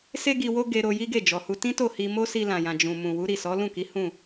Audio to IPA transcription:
s e˧ ɡ i˨ w o˧ ɡ e˧ ɾ o˧ j i˦ ɡ e˦˨ d͡ʒ ɔ˨ h u˧ t ĩ˦ t o˦˨ h i˧ m o˦ s i˧ l ã˨ j ã˨ d͡ʒ ũ˨ m ũ˨ w u˨˦ ɾ i˦˨ s ɔ˨˦ l ũ˦˨ k i˨˦ h ũ˦˨

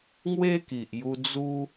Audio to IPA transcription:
ŋ w e˦ k i˨ ʔ j u˧ d͡z u˧

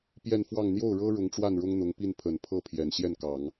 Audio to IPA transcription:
p j ɛ˥˧ n f w ɑ˥˧ ŋ n̪ j o˥˩ ʊ̯ ɻ ɤ˥ ɻ ʊ˧˥ ŋ ʈ͡ʂ w a˥˩ n ɻ ʊ˥ ŋ n̪ ʊ˧˥ ŋ p i˥˩ n pʰ ə˨˩ n pʰ ɤ˥˩ pʰ j ɛ˨˩ n ɕ j ɛ˥˩ n k ɑ˨˩˦ ŋ

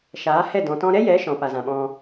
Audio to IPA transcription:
ʃ aː˨˦ h ɛ˦˨ d ɔ̃˨ t ɔ̃˧ ɾ ɛ˦ j ɛ˨˦ ʃ ɔ̃˨ p a˨ z ã˨ ɓ ɔ̃˧

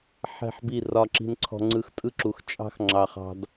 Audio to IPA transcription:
ħ ɛ̤˦˨ ħ b i˦˨ r ɒ˧ ǁ i̤˧ n ǀʰ ɔ̤˧ ŋ͡ǀ ɯ˧ x tʼ ɯ˦ ǁ u˨ x t͡ʃʼ ɑ̤˦ x ŋ͡ǁ ɑ˧ χ ɑ̤˧ d

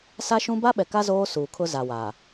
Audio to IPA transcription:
s a˦ ʃ ũ˦ b a˦ ɓ ɛ˨ k a˦ z oː˦ s uː˨ kʰ ʊ˦ z a˨ w aː˨

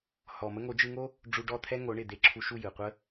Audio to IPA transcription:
h ɔ˨ m ə˧ ŋ o˨˦ d͡ʒ ɯ˧ ŋ o˦ | ɖ͡ʐ u˧ ɖ ɔ˦˨ t̪ʰ ɛ˦ ŋ o˨˦ ɳ ɪ˨ d̪ e˧ ǁʰ u˧ ʃ u˦˨ j ɯ˨ qʷ ə˦

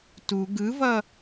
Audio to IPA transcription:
t u ɡ ɯ v ʌ

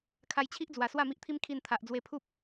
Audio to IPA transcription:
kʰ a˧ j t͡ɕʰ i˦ ʔ d͡z w a˨˩ s w a˥˧ m i˦ ʔ t̪ʰ i˦ m kʰ i˧ n t̪ʰ a˨ ʔ d͡z w e˧ pʰ u˦ p̚

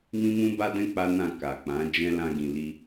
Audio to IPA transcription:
m ĩ˦ m ũ˦ b a˦ d ɛ̃˦ k͡p a˦ n ã˦˨ k a˨ k͡p ã˨˦ d͡ʒ ɛ̃˦ l ã˦ ɡ ĩ˧ l i˦

